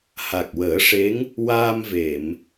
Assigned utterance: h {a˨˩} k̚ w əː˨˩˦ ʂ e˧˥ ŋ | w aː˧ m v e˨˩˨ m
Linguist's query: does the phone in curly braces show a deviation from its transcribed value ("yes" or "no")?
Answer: no